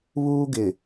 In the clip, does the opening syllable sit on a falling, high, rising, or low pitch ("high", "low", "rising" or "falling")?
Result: high